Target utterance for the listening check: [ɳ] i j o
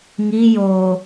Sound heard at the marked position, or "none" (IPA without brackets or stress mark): ŋ